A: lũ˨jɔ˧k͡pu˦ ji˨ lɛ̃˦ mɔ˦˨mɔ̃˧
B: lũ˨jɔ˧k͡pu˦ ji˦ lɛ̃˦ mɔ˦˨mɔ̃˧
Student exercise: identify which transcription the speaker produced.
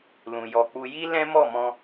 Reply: B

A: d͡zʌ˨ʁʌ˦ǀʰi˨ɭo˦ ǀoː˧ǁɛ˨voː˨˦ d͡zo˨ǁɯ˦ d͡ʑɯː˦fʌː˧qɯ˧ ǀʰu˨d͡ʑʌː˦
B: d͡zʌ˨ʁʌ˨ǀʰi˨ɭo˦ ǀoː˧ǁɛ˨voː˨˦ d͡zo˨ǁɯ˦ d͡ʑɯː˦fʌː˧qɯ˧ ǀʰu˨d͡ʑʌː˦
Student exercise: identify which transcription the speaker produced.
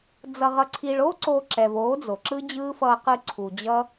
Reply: B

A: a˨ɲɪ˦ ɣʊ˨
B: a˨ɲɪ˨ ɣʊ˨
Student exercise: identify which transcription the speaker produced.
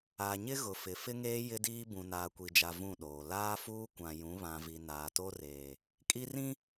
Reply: A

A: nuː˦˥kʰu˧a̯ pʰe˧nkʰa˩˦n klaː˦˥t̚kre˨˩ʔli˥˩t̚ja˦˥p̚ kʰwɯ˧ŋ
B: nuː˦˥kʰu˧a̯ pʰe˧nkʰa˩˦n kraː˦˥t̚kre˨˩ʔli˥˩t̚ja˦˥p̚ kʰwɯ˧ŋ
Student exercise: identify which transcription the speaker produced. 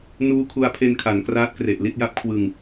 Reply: B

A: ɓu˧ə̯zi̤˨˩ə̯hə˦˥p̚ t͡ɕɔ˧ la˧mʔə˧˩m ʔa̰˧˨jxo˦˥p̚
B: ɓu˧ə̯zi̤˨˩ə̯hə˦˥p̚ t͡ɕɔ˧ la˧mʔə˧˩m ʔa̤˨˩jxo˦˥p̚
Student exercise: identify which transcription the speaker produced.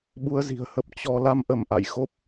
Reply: A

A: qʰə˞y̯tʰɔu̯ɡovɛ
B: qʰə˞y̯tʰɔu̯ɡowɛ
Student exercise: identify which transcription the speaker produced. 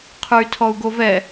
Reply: A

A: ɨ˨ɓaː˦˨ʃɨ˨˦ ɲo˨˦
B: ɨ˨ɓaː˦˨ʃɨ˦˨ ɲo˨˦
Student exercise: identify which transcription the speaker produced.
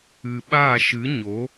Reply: A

